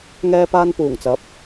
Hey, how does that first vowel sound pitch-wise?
high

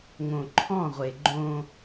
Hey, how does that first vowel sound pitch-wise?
low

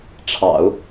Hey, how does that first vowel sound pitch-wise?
low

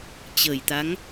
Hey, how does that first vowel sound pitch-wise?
low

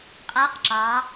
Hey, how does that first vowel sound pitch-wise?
rising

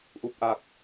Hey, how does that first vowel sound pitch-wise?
low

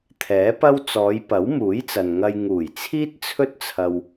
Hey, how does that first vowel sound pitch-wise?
rising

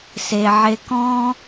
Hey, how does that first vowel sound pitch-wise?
high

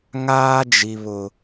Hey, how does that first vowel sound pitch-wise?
high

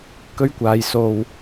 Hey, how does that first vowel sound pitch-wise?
high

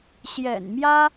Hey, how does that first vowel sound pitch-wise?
low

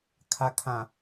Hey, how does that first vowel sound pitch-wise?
low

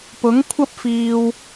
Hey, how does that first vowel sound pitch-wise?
rising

